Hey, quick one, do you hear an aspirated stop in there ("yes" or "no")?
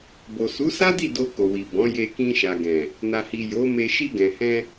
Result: no